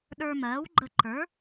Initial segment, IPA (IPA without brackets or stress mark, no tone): ɗ